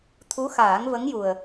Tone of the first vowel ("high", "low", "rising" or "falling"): rising